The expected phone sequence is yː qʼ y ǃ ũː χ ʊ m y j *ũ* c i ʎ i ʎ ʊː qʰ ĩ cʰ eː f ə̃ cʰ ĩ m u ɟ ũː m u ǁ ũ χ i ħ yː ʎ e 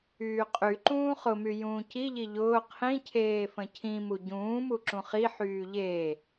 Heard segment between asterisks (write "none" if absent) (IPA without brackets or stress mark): ũː